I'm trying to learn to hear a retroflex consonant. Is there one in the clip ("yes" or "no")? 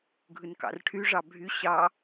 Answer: yes